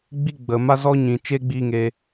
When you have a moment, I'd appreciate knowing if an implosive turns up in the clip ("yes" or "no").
no